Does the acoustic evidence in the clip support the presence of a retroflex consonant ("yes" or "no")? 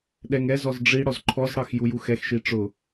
yes